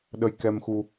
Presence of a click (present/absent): absent